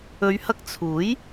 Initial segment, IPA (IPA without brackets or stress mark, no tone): ɵ